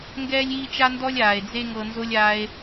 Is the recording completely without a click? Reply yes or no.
yes